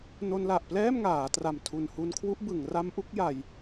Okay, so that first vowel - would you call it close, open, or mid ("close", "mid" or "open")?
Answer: mid